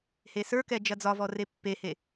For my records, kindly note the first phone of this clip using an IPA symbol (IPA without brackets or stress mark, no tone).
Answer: h